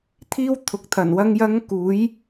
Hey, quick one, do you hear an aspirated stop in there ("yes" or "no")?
yes